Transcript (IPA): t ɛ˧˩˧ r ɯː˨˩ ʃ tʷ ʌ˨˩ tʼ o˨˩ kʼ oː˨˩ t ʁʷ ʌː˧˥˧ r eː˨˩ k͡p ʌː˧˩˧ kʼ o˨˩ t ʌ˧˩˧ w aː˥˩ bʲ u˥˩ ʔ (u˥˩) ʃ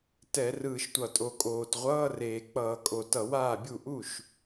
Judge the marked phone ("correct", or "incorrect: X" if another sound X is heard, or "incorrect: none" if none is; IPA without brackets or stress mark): correct